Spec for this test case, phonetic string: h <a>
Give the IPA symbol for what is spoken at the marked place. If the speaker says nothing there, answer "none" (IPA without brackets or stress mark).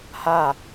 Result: a